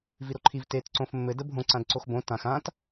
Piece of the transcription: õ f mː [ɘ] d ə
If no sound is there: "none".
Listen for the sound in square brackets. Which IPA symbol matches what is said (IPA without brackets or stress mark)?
ɘ